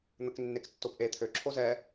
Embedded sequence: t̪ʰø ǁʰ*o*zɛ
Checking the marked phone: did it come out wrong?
no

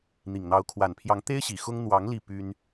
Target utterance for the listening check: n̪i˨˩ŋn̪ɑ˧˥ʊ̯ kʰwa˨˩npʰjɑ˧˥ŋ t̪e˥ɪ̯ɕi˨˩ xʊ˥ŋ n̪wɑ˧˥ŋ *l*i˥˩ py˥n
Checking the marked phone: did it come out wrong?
no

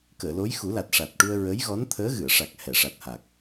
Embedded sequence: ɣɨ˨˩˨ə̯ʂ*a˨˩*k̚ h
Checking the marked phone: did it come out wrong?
no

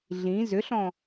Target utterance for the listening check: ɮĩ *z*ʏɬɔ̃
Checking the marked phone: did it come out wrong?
no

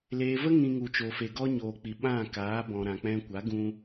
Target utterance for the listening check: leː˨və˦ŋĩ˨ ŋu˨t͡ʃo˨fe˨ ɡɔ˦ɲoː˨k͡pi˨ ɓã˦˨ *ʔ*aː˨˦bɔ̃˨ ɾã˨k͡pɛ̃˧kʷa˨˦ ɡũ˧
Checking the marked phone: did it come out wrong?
yes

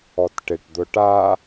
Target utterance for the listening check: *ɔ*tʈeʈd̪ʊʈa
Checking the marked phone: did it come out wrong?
no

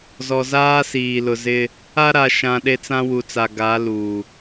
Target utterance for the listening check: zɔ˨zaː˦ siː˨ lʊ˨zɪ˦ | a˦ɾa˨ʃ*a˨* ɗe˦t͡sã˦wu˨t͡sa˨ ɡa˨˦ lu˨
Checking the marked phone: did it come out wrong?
yes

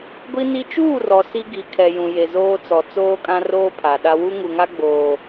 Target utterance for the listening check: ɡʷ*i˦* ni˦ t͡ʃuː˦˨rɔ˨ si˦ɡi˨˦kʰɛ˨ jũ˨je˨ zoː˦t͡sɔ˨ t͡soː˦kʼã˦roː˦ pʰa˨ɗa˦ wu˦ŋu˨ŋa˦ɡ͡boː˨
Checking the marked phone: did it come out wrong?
no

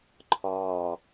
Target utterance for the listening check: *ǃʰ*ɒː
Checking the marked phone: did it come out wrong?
no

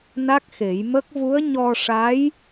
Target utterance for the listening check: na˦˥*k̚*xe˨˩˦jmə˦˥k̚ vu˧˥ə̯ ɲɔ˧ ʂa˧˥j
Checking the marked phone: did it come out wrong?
no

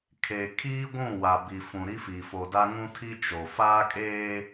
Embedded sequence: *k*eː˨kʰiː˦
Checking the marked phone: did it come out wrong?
yes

